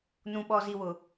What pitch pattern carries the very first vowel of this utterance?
low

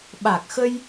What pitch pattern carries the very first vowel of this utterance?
low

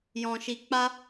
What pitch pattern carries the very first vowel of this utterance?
low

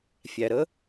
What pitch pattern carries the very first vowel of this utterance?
low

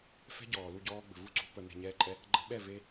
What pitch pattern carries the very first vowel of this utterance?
high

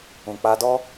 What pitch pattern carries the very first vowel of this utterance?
low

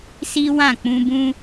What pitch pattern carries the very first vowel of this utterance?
high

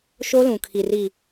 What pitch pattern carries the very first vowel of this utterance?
high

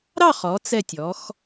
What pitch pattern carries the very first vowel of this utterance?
falling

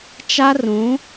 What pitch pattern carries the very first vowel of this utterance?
high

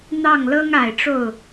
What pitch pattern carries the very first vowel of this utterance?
falling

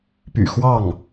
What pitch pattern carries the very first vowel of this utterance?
low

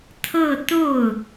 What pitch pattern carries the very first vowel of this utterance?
falling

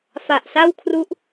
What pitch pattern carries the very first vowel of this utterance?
low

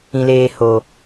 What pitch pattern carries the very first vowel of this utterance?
low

